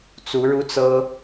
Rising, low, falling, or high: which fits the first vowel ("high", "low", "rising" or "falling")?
rising